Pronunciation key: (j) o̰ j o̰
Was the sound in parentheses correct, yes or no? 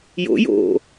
yes